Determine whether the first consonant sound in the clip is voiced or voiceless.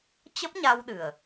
voiceless